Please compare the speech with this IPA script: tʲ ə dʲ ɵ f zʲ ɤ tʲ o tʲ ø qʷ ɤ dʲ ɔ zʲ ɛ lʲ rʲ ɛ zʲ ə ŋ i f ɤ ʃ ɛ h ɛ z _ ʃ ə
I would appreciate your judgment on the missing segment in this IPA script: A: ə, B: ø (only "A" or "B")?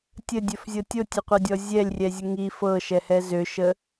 B